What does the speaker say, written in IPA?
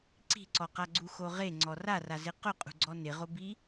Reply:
ǀ i̤ ǀ ɔ q a ɡ͡ǀ u x o ʁ e ŋ͡ǀ ɔ r a r a z ɪ q ʊ qʼ ṳ ɡ͡ǀ ɔ n ɪ ʁ o b i

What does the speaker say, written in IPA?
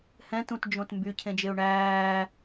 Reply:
h ɛ̃ t ũ t d͡ʒ õ t m b y cʰ ẽ d͡ʒ e ʊ̯ ɳ æː

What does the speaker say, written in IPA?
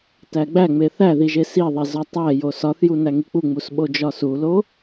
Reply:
t æ ɡ͡b æ ŋ͡m e θ æ ð i ʒ e s i ðˤ e z ɒ tˤ æ j o s ɒ θ j u n æ ŋ i k͡p u ŋ͡m u s ɓ o d͡ʒ ɒ s u l o

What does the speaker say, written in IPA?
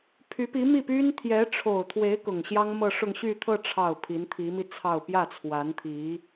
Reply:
pʰ y˧˥ p i˧˥ m i˥˩ p y˥ n t̪ʰ j ɛ˧˥ ʈ͡ʂʰ o˨˩ ʊ̯ t̪ʰ w e˧˥ ɪ̯ k ʊ˨˩ ŋ ɕ j ɑ˥ ŋ m ɤ˥˧ ʂ ʊ˥˧ ŋ ɕ y˥˧ t̪ʰ ɤ˥˧ ʈ͡ʂʰ ɑ˥˩ ʊ̯ pʰ i˧˥ n t̪ʰ i˧˥ m i˧ t͡sʰ ɑ˥˧ ʊ̯ p j ä˥˩ t͡sʰ w a˧˥ n t̪ʰ i˧˥

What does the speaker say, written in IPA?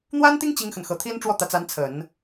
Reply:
n̪ w a˥ n t̪ i˥ ŋ t͡ɕ i˥ ŋ x ə˨ n x ɤ˧˥ t̪ʰ i˥ n ʈ͡ʂ w ɔ˥˩ t̪ ä˧˥ t͡s a˧˥ n t͡sʰ ə˨˩˦ n

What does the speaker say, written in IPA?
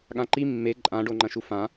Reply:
ɠ ã ǃ i mː e ǃʼ ã ɖ o ŋ͡ǃ ɐ̃ ʃ u f ã

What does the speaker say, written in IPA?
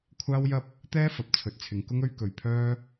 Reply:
kʷʰ aː˥ w j ɐ˥ p̚ | t̪ ɛː˥ f ɐ˨˥ p̚ t͡sʰ ɵ˨ t̚ t͡sʰ ɪ˨ ŋ k ʊ˥ ŋ ɵ˥ ɥ k ɵ˧ ɥ pʰ œː˥

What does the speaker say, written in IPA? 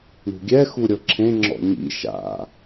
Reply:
ɳ ṳ ɡʲ ɛ x u ɾʲ ɤ ǁʰ ẽ ŋ͡ǁ ɔ̰ ɲ ḭ ʃ a̰

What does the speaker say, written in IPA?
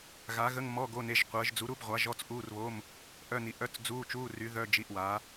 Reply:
ɣ a˨˥ ɣ ə˧˥˧ ŋ m ɔ˧˥˧ ɡ o˧˥˧ n e˧˥˧ ʒ qʷ əː˨˥ ʒ d͡z u˨˥ ɾ u˧˥˧ b ʁʷ a˨˥ ʒ ɔ˧˥˧ t͡s ʔ uː˧˥˧ r β o˧˥˧ m | ʔ œ˧˥˧ n i˨˥ ʔ œ˧˥˧ t͡s d͡z uː˧˥˧ t͡ʃ uː˧˥˧ r y˨˥ ð œ˧˥˧ d͡ʒ i˧˥˧ ʔ w a˨˥

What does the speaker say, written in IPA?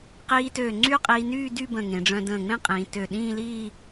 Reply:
q iː˧ t ø˧˩ ŋ͡ǀ y˥ qʼ iː˧ n yː˥˧ d y˥˧ b ə̃˧˩ ŋ ẽ˩˧ ɖ͡ʐ œ̃˧ d ə̃ː˧˩ ŋ͡m ẽ˥ qʼ ĩː˩˧ t ø˧˩ ɗ ĩː˥˧ l iː˥˧

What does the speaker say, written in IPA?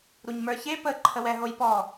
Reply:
ɾ u ɲ m ə˞ ç e p ə ǃʰ ə w ɛ ɦ o j p ɔ

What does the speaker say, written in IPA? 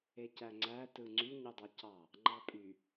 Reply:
e c æ ŋ͡ǀ æ t ɯ ŋ͡ǀ y ɲ u dˤ ɑ c ɑ | ŋ͡ǃ ɑ pʼ y

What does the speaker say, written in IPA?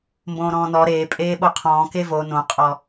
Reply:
m b õː ɾ ɔ̃ː n ɔ ɾ eː pʼ eː ɓ o qʰ ɔ̃ː k e v o n õ qʼ ɔ

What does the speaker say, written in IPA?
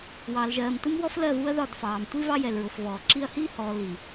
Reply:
w ɑː˨ l ʒ ɜː˨ m t u˦ m w ɔ˦ f l ɜ˦˨ v u˦ ɐ̯ ð ɒ˦˨ d f ɑː˨ m tʷ i˦ v ɑ˦ j ɛ˨ l ɹ ʊ˨ f v ɔː˨ ǁ i˦ ɐ̯ h iː˦ h ɔː˨ l i˨

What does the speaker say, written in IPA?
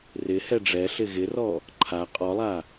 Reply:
r ɪ h ɛ ɖ͡ʐ ɛ ɬ ɪ ɣ ɪ r ɔ | ǃʰ a qʼ ɔ lˠ a

